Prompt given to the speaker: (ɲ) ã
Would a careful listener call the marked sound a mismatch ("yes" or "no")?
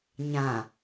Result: no